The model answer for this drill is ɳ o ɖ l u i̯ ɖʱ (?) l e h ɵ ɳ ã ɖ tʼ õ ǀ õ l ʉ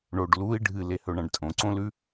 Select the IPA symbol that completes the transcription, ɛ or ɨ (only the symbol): ɨ